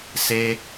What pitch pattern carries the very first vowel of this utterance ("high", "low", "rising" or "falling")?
high